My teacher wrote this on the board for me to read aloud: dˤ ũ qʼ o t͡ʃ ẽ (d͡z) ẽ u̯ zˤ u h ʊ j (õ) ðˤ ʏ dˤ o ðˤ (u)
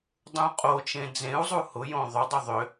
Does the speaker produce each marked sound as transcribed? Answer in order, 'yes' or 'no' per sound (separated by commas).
yes, yes, no